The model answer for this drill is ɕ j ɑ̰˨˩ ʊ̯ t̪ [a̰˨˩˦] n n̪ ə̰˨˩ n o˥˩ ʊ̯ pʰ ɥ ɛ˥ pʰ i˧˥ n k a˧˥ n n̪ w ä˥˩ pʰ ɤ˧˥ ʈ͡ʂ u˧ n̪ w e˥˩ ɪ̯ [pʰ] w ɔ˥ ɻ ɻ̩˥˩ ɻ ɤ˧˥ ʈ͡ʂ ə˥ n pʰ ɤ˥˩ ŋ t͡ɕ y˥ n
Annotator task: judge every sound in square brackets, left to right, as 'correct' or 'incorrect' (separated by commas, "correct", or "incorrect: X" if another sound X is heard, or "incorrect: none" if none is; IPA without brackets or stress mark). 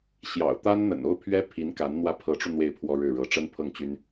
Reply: incorrect: a˥, correct